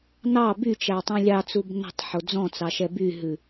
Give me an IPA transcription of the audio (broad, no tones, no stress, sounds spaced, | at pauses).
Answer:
n ɑ b y t͡ʃ æ tˤ ẽ lʲ ɑ t͡s u b n ɛ̤ tˤ ħ o d͡z ɔ̃ t͡s ɑ ʃ ɛ b y ɦ ʉ